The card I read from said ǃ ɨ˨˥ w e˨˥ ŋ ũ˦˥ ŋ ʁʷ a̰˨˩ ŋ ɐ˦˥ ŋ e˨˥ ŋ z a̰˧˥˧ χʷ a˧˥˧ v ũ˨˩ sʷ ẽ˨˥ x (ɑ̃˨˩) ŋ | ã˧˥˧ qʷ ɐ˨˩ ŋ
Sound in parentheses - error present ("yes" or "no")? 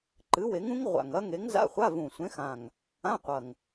yes